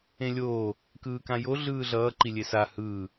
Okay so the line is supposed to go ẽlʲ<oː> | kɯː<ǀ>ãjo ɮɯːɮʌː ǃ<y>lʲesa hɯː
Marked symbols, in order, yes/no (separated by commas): yes, no, no